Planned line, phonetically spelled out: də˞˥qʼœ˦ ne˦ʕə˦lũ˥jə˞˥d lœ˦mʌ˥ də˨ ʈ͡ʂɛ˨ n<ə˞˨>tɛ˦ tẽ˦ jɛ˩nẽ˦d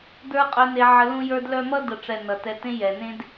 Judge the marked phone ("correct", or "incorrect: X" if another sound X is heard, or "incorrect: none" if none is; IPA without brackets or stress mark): incorrect: ʌ˨